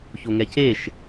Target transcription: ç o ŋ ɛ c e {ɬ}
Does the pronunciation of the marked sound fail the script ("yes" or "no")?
yes